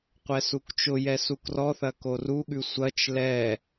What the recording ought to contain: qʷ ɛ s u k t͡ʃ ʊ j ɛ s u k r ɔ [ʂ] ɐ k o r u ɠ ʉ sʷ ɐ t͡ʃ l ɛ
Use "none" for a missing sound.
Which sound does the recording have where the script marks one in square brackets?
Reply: θ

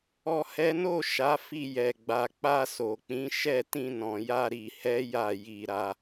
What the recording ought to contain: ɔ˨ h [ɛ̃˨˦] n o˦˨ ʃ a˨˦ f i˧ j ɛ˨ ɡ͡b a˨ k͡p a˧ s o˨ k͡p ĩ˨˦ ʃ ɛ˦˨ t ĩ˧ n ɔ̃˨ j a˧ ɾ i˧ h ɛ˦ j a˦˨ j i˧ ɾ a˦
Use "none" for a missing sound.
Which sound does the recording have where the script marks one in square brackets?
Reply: ɛ˨˦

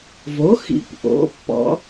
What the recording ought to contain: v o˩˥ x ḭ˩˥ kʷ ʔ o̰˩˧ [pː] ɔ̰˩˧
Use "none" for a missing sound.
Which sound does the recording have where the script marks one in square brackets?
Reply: pː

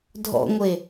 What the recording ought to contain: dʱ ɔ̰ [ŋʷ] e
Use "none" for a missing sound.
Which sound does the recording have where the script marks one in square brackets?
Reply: ŋʷ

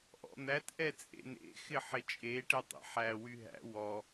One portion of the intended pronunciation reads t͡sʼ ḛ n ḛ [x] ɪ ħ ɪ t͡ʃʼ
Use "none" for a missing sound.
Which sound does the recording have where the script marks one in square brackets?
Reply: x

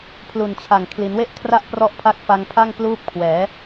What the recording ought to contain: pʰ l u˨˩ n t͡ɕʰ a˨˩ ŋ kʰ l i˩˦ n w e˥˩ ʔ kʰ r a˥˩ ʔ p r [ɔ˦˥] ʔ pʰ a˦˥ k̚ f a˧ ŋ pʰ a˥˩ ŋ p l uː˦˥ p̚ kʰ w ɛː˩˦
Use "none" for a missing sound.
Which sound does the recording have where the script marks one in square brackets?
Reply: ɔ˦˥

